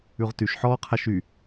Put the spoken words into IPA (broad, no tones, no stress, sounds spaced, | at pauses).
ʉ ʁ t y ʃ ħ ɔː qʰ a ʃ y